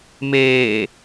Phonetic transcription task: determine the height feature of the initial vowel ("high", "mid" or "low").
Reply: mid